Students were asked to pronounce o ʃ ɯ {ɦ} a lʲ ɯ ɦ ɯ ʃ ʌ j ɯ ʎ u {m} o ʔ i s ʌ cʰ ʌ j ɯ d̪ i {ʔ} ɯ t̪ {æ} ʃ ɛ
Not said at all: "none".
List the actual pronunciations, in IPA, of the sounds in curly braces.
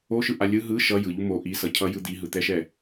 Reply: ʔ, m, ɦ, ɛ

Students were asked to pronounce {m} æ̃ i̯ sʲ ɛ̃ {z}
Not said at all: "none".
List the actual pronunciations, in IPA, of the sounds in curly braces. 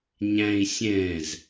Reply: ɲ, z

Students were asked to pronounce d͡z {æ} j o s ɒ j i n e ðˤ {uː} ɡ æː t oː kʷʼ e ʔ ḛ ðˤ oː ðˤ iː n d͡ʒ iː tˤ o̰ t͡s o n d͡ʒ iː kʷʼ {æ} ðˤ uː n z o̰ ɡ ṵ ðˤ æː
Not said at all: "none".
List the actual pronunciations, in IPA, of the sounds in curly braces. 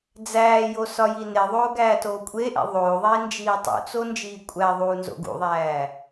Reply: æː, oː, æ

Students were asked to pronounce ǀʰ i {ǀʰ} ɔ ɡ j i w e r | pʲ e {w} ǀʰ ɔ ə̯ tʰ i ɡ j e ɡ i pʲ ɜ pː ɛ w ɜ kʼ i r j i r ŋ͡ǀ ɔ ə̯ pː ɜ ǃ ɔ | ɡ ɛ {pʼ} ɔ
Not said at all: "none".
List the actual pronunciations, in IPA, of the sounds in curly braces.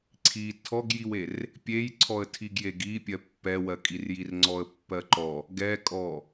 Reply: tʰ, j, kʼ

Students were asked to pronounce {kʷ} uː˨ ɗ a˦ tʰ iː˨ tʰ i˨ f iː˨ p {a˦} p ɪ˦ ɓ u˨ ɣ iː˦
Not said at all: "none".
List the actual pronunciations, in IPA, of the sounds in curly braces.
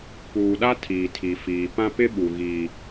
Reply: p, ã˦

